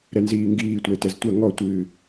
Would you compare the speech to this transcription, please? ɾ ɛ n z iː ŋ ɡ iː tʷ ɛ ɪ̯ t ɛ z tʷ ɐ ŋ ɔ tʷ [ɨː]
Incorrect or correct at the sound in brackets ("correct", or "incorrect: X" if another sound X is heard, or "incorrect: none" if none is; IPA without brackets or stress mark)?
correct